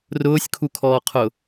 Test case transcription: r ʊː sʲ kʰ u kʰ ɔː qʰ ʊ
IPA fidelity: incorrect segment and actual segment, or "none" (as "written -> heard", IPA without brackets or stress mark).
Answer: none